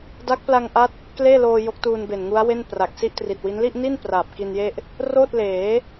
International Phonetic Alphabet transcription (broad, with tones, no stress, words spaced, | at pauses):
da˦˥k̚pla˧ŋʔa˦˥t̚ | kleː˥˩loː˧ jo˦˥k̚tuː˧nbe˨˩n ŋu˦˥a̯we˥˩n pra˨˩k̚si˥˩ʔtri˨˩t̚wi˦˥n li˥˩ʔni˥˩n praː˨˩p̚ ki˧nje˥˩ʔ | roː˥˩t̚ leː˩˦